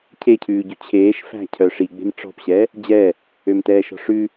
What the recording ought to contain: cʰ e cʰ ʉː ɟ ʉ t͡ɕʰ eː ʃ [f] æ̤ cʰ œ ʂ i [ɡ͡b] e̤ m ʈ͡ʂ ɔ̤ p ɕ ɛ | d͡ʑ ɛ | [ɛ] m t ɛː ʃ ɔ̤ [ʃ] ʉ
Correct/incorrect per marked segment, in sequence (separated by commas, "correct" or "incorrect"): correct, correct, incorrect, incorrect